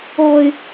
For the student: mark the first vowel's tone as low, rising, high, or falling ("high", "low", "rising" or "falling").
low